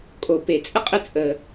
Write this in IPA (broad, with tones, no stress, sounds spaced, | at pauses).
kʼ o˩ p e˩ t͡sʼ ə˥ qʼ ə˥ t͡sʼ əː˩